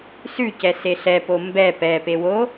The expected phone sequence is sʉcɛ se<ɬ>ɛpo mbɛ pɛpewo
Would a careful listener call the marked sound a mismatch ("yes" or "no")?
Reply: no